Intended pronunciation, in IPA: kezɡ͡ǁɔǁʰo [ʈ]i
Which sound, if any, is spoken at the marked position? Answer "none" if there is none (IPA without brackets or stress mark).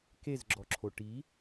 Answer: ʈ